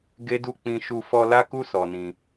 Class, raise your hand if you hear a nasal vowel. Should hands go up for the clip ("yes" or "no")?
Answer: yes